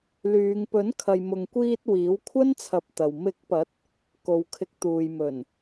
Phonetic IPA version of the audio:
lyː˨˧ŋpɵ˨˥n kʰɐ˨jmʊ˨ŋkʷiː˧t̚ wiː˨˥wkʷʰɐ˥nt͡sʰɐ˨˥p̚ t̪ɐ˨w mɪ˨˥k̚pɐ˨˥t̚ | ko˨˧wkʰɪ˨˥k̚t̪uː˨jmɵ˨˩n

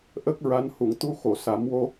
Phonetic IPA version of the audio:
ʔə˦˥k̚ ɹa˧˥nhu˨˩˨ŋ t̪u˧xo˨˩˨ sa˨˩˦mwo˧

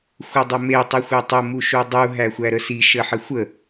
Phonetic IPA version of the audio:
xʷədˤəme tˤixʷetˤə muʃudˤu ɦæxʷæɾəsi ʃəħəxʷə

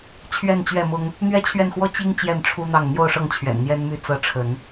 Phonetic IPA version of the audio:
t͡ɕʰɥɛ˥˨nt͡ɕɥɛ˥˨mʊ˦ŋ | n̪ɥɛ˦t͡ɕʰɥɛ˥˨nxwɔ˦ t͡ɕi˦ŋ t͡ɕjɛ˥˨nʈ͡ʂʰu˦n̪ɑ˥˨ŋ n̪jo˥˨ʊ̯ʂɤ˥˨ŋt͡ɕʰɥɛ̰˨˩n n̪jɛ˦nmy˦ t͡sɤ˨˦ ʈ͡ʂʰə˨˦n

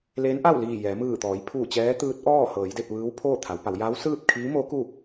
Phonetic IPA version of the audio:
leː˧˥nʔa˥˨wliː˧˩ jɛː˩˧ mɯː˧˩t̪ɔː˩˧j pʰuː˧˩t͡ɕɛː˧˥t̪ɯː˧˥t̚ʔɔː˥˨ hɤː˩˧jde˥˨p̚ ʋɯː˧˥wpʰoː˥˨t̪ʰa˩˧wpa˩˧w ja˧˥wsɯː˥˨p̚kʰiː˧˥mo˧˥ ku˥˨

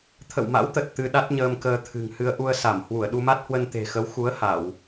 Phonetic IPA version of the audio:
t̪ʰə̰˧˨wma̰˧˥wt̪ə˨˩t̚ t̪ɨ˧ɗa˦˥t̚ ɲəː˧mkəː˧t̪ʰɨ̤˨˩ŋhɨ˧ə̯ ʔu˧ə̯sa˧˩m hwu˧˩ə̯ɗu˧ma˦˥t̚hwə˧n t̪e̤˨˩xə˨˦w xu˨˦ə̯ ha˧˩˨w

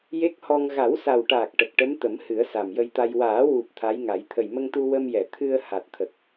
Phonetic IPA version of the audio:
je˦˥k̚hɔ˧ŋ ɣa˨˩˦wsa˨˩wʈaː˨˩k̚ ʈə˨˩k̚ʈə˧˥m t̪ə˨˩˦m hɨ˨˩˦ə̯sa˨˩mjə˧jt̪a˧j waː˨˩˦wu˨˩p̚ t̪ʰa˧˥jŋa˨˩˦j t̪ʰə˨˩jmə˧ŋt̪u˧ wə˧mjɛ˨˩˨ t̪ʰɨ˧ə̯ ha˨˩t̚t̪ʰə˨˩k̚

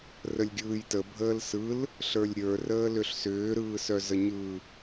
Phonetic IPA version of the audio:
rəlʲɡʲɯːjtə bʱəːlsɯl | ɬə˞lʲɾʲə˞ rəːlʏɬsʏː ɾɯːsœzəɲɯ

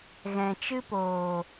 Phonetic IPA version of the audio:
ɣɛ̃˨ t͡ʃɨ˦poː˨

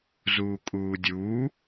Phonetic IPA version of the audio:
zuːkʼuːdʲuː

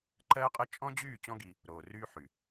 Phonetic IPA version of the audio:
ǃɜː˦qʼɜ˦ t͡ʃʼɔ̃˦d͡ʑyː˦˨ t͡ɕɔ̃˦ɡi˧ | ɾoː˨ryː˦ħy˨

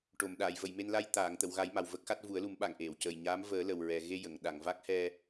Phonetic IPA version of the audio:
ʈo˨˩˨mɗaː˨˩˨jvə˨˩˨jme˧n la˧j t̪aː˨˩˨ŋt̪ə˨˩˨wɣa˨˩˦j ma˨˩wvə˦˥k̚xa˦˥t̚ vu˨˩˦ə̯lu˨˩˦mɓa˨˩˨ŋ ʔe˨˩˨wcəː˨˩jɲaː˧˥m vəː˨˩˦ lə˨˩wɹɛ˨˩ ɣe˧jə˨˩˨ŋ ɗa˨˩˨ŋva˦˥k̚ hɛ˧

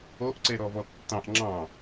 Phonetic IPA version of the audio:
oʔǀeɾɔvɔ tːɑ̃ʔ ŋ͡ǁɑ̃

